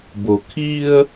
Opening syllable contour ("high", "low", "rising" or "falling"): low